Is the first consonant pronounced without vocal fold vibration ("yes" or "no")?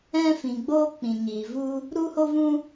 yes